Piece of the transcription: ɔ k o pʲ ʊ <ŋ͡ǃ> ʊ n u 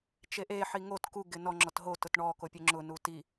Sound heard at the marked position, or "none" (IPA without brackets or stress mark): ŋ͡ǁ